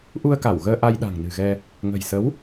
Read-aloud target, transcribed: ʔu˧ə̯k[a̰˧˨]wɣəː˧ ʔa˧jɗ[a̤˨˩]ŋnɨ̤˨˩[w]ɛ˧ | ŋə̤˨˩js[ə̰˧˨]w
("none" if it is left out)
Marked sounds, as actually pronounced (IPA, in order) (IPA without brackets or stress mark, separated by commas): a˧˩, a̤˨˩, ɣ, ə˨˦